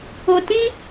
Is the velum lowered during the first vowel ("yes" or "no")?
no